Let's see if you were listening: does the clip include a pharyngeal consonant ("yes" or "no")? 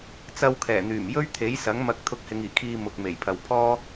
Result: no